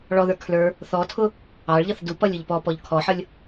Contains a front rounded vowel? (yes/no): no